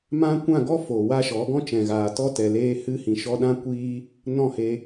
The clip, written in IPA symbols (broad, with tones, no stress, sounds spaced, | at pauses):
m ã˦ kʷ ã˦˨ ɡ ɔ˦ f o˨ w a˦ ʃ ɔ˨˦ ɡ ɔ̃˦ t͡ʃ ɛ̃˨ ɣ aː˨ t ɔ˦ t ɛ˨ l eː˧ h ɨ˧ h ĩ˨ ʃ ɔ˧ ɗ ã˦ kʷ iː˦ | n ɔ̃˦˨ h e˧